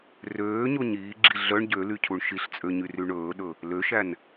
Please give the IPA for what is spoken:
r øː ɲ o ɲ iː ɡ͡ǁ i ɮ œ ɳ ɟ ø l y cʰ u ɳ ʃ i ɬ t͡sʼ ø ɲ y r y ɳ ɵː ɗ ɵ | l ø ʃ æ n

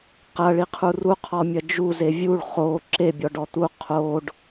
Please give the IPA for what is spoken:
q ɐ ɭ i qʰ u r u qʰ ɔ mʲ ɐ d͡ʒ u z e vʲ u ɭ χ o ǁ e bʲ ɔ ɖ ɔ t̪ u qʰ o ɖ

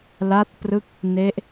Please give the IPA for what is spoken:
l a˦˥ t̚ p r ɯ˦˥ k̚ | n e˦˥ ʔ

